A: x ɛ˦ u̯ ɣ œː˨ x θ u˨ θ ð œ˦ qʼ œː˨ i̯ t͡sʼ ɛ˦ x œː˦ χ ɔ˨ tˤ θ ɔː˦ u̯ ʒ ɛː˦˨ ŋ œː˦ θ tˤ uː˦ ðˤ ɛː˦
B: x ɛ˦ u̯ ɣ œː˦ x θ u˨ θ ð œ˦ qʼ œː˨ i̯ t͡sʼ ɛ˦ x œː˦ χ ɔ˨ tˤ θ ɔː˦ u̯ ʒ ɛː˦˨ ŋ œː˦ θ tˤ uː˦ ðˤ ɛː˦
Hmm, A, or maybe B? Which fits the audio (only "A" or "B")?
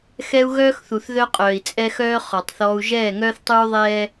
B